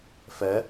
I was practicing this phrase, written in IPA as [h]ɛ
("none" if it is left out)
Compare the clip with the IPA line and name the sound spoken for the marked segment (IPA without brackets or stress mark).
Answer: f